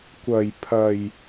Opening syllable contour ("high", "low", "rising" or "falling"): low